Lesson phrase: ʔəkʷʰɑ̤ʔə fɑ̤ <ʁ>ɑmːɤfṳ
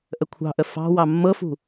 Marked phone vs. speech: incorrect: w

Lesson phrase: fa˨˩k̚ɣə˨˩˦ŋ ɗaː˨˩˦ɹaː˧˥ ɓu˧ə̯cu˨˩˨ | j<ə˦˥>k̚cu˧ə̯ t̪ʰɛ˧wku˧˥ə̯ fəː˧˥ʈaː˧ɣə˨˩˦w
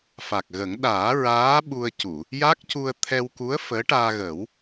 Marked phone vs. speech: incorrect: a˦˥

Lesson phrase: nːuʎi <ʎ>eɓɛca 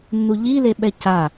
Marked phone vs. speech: incorrect: l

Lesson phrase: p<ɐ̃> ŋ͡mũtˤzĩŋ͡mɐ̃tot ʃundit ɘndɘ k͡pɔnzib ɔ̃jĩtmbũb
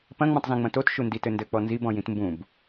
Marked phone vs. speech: correct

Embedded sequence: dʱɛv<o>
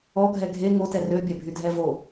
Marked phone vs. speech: correct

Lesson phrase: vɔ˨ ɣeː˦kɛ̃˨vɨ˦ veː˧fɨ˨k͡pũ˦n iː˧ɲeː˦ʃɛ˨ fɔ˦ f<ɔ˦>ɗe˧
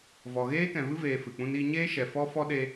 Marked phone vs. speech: correct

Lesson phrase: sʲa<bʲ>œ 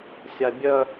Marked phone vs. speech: correct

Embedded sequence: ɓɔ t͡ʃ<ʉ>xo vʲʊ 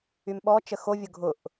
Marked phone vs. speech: incorrect: ə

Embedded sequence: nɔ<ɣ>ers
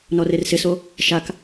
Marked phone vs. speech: incorrect: r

